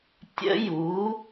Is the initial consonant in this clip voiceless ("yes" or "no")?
yes